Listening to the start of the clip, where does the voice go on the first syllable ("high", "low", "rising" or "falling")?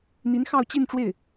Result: rising